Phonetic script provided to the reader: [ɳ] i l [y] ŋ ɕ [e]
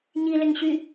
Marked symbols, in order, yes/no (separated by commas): no, no, no